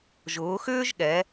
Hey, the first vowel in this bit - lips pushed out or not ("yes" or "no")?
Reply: yes